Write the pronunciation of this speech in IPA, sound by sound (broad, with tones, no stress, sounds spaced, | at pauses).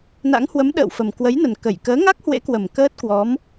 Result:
n a̰˧˥ ŋ h w ə˨˦ m ɗ ə̰ː˧˨ w f ə˨˩ m k w ə˨˦ j n ə˨˩ n k ə˧˩ j k əː˨˦ ŋ a˦˥ k̚ h w ḛ˧˥ k w ə˨˩ m k əː˦˥ t̚ k w ɔ˨˦ m